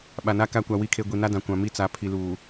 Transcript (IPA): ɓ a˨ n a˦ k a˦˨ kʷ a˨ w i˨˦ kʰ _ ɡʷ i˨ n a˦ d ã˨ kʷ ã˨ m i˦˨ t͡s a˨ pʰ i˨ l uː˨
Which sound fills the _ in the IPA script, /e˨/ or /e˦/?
e˨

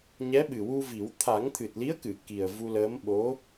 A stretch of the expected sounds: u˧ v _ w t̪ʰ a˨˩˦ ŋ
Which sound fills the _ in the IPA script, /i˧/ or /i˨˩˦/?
i˨˩˦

